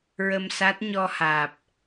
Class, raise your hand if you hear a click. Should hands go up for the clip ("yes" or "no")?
no